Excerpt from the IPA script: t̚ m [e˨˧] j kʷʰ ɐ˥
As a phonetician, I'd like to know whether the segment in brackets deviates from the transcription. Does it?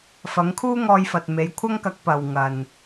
no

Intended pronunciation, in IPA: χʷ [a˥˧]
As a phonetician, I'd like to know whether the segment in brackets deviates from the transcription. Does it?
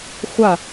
no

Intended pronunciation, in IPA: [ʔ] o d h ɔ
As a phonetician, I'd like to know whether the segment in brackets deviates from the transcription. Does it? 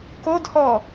yes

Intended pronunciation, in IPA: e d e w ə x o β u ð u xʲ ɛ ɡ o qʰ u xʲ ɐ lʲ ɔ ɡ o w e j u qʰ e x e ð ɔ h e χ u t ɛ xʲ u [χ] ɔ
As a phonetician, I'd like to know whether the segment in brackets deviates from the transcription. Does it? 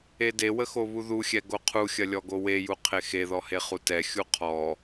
yes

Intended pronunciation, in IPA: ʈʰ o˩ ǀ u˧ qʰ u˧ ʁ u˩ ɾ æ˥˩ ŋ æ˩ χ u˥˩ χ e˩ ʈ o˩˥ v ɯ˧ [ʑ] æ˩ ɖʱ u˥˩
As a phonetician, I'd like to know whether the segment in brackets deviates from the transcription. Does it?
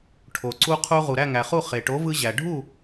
no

